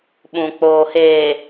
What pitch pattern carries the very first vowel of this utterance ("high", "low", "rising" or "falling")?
low